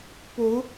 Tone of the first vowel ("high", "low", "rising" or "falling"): rising